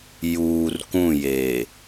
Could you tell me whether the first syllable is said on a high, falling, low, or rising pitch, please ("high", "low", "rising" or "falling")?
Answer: low